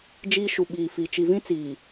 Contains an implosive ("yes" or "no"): yes